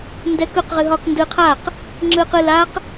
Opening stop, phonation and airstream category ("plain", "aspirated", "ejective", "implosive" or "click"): plain